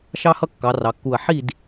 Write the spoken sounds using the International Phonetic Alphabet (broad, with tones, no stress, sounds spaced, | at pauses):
ʃ ɑ˦ h ʌ˦ kː ɑ˩˧ r ɑ˩˧ kː u˧˩ ɐ̯ ħ i˥˨ d